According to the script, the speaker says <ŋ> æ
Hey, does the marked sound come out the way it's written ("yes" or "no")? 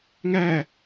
yes